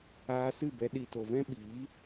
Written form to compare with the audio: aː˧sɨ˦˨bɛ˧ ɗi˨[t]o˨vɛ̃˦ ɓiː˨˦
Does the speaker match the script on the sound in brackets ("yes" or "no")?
yes